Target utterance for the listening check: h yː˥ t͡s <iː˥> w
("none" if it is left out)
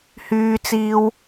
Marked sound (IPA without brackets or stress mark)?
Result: iː˥